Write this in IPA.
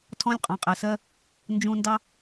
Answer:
tʰ ɔ̃˦ lʲ qʼ ɑ̃˨ qʼ ɛ˨ s ɜ˦ | n d͡ʒ ũ˧ n d ɑ˦

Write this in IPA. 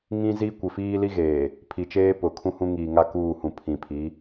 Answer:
ŋ ĩ˦ z i˦ kʷ ɪ˨ f iː˦ l i˦ ɣ eː˨ | pʰ i˨ t͡ʃ eː˦ p ʊ˨ kʰ ũ˦ h ũ˦ ŋ iː˨ ŋ a˦ k uː˦˨ h ũ˨ pʰ ĩ˨ pʰ i˨˦

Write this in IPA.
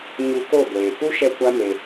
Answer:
ɲ u˧ k o˦˨ ɡʷ eː˨ k u˦ ʃ ɛ˧ kʷ a˦ m e˧

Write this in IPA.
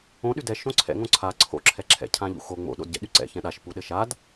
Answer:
õ ɗ y d ɛ ʃ õ ǀʰ ɛ̰ ŋ õ ǀʰ a ǀʰ o̰ ǁʰ ɛ ǁʰ ɛ̰ cʰ ã ʎ ṵ x o ŋ͡m o̰ ɗ o̰ d ɟ ɛ̰ ɗ y ǀ ɛ̰ ç ɛ̃ ɗ a ʃ p u ɗ ɘ ʃ a d

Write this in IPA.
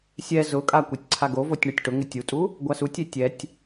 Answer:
sʲ ɛ z ʊ kʼ a kʷ ɛ tʲ ǀʰ a ɡ o v o tʲ ɳ u tʲ ʈ ʊ ŋ ɪ tʲ u tʼ u | ɡʷ a s u tʲ e tʲ ɛ tʲ

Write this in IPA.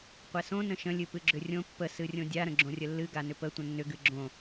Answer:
qʷ ɛ s õ n ə̃ ʃ ə̃ lʲ ɨ p ɨ ɡ͡ǁ ʏ rʲ õ pː ə s ɨ rʲ õ dʲ a ɾ ə̃ ɡ͡ǁ õ rʲ ə lː ɨ ɡ a n ʏ p ə tʷ ə̃ nː ʏ ɡ ɨ ɡ͡ǁ õ

